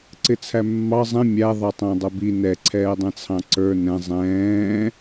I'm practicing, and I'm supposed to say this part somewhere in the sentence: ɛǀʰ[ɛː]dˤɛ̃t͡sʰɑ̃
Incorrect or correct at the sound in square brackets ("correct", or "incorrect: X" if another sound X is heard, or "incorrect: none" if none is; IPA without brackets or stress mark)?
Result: correct